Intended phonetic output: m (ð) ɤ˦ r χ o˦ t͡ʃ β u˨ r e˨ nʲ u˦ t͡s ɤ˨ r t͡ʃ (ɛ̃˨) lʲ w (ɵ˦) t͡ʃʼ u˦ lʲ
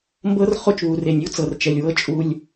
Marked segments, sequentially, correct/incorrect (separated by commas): incorrect, incorrect, incorrect